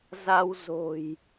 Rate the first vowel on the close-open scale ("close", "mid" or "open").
open